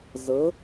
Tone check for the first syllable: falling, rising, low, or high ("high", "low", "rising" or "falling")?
rising